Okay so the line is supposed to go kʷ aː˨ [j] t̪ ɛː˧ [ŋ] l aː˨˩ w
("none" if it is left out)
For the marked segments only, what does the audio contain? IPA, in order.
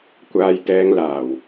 j, ŋ

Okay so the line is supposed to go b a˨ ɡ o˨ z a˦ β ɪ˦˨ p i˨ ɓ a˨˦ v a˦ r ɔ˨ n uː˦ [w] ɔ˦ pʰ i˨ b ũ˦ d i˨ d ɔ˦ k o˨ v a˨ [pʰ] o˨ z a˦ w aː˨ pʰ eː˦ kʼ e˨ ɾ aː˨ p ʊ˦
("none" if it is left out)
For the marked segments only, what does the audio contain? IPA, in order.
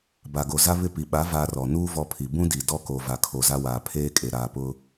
v, kʰ

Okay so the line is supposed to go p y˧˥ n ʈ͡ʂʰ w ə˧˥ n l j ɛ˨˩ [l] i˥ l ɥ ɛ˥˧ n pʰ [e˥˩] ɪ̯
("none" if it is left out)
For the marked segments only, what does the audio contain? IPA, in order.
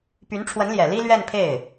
l, e˥˩

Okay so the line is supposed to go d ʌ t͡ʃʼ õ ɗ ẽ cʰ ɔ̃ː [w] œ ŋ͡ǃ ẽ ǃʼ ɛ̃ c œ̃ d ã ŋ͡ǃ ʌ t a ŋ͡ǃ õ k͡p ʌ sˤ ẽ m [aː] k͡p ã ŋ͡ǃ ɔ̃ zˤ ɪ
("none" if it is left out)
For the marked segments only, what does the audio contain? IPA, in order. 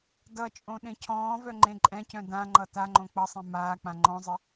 v, aː

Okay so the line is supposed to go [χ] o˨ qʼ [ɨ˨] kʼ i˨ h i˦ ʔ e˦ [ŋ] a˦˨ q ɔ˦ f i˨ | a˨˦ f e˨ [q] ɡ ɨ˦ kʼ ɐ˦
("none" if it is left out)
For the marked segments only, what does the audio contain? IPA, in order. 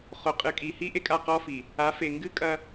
χ, ɨ˨, kʼ, ŋ

